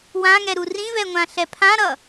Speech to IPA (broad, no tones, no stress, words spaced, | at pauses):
wãŋɛɾu rĩvɛŋʷãɬɛ pʰãɾʌ